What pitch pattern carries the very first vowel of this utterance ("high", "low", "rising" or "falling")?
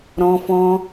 high